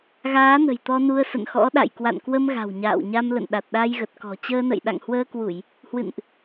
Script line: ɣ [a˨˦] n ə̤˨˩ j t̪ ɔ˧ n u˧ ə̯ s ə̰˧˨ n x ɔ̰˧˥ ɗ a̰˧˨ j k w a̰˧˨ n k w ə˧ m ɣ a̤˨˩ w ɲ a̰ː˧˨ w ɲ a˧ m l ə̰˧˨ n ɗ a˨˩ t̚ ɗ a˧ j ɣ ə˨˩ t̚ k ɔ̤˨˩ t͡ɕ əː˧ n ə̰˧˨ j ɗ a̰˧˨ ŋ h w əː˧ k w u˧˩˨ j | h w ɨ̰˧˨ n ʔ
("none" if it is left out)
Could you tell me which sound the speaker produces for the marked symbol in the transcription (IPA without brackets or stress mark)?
aː˨˦